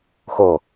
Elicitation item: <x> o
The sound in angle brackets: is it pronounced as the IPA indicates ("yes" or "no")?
yes